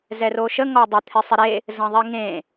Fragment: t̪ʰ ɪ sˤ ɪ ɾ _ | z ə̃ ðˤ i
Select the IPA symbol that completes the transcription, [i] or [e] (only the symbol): e